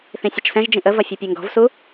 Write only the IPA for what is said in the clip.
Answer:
θ ĩ sʲ ɐ t͡ʃ s ɛ̃ ʒ d͡ʒ ĩ ʔ ə v ɐ fʲ u pʲ ɛ ŋ ɡ ɔ̤ v s u

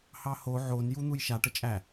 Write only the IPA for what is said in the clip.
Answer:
h ɑ h o ʕ o n j u n̪ u j ʃ a ʈ ə t͡ʃʼ æ

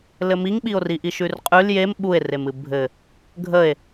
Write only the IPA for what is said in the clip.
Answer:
l ɘ m i ŋ ɓ i o̯ r i ʔ i ʃ ʉ r qʼ ʉ l j e m ɓ u e̯ r e m ɨ bʱ ɘ | ɡʱ ə e̯

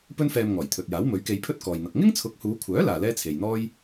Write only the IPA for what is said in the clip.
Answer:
p ɵ˥ n f ɛː˧ m ŋ ɔː˨˩ j t̪ʰ ɵ˨ t̚ j aː˨˥ w m ɵ˨˥ ɥ k e˧ j pʰ ɵ˥ t̚ k ɔː˨ j n̪ ɐ˨ k̚ ŋ ɪ˥ ŋ t͡sʰ ʊ˨˥ k̚ h uː˨˧ kʷʰ œː˨˥ l aː˨ l ɛː˥ t͡sʰ e˨ j n̪ ɔː˥ j

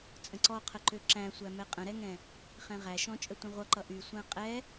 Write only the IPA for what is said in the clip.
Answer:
t͡sʼ ə̃ ǀ ɔ qʰ ə ǃ ø ǁ æ̃ sʷ æ m ɛ qʼ ə̃ ɾ ɛ ŋ ɛ̃ | χ ɛ̃ ʁ æ ʃ ɔ̃ t͡ʃʼ ə tʷ ə̃ ʁʷ ʌ ǃ ʌ ʔ y sʷ æ̃ qʼ ɛ

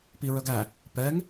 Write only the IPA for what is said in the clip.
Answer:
p i ɹ œ ɡ æ | p ɛ ŋ

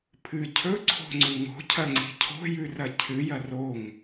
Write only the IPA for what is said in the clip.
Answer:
pʰ ɨ cʰ ɵ ǀʰ o̤ ŋ͡ǀ ʉ ŋ o̤ cʰ ɐ ŋ͡ǀ i̤ cʰ o̤ j ʉ r ɐ cʰ ɨ j ɐ r o ŋ

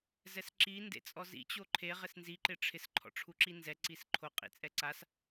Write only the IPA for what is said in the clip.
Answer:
z ɛ s ǁ i n d ḛ t͡sʼ ɔ z ḭ t͡ɕ o ǃʰ e ʁ ɪ s n z i ǃ ɪ ʈ͡ʂʰ ɪ s ǃʰ ɔ̰ ʈ͡ʂʰ u ǁ i n z ɛ ǀ i s ǃʰ o qʼ ḭ t͡sʼ ɛ ǀ a s

